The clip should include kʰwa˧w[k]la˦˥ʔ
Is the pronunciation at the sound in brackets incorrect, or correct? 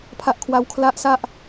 incorrect